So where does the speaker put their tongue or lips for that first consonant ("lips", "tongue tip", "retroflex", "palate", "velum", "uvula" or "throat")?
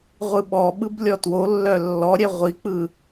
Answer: uvula